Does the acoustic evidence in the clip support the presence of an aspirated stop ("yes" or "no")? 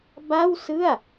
no